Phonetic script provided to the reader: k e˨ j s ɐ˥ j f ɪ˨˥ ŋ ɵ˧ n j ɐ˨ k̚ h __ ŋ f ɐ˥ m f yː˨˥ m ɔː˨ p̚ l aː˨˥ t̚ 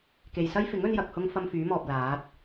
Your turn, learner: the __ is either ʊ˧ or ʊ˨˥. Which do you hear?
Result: ʊ˧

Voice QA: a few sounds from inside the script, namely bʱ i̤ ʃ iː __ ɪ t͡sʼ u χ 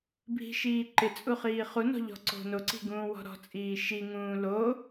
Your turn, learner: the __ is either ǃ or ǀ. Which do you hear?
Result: ǃ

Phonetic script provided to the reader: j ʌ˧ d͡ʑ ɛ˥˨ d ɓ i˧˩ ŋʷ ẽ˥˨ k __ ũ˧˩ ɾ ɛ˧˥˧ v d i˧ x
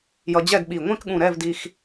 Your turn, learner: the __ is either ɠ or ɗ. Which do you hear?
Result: ɠ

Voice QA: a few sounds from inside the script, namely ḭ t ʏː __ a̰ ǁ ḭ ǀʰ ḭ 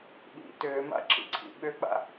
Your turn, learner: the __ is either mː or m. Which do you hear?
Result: m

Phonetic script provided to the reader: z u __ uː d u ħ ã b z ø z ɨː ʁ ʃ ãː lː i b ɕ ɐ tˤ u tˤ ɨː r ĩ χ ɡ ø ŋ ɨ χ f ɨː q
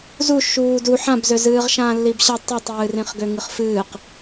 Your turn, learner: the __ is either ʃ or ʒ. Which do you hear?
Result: ʃ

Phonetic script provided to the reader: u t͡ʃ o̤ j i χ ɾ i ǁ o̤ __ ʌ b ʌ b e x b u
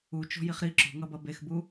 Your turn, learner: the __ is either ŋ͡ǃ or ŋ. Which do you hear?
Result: ŋ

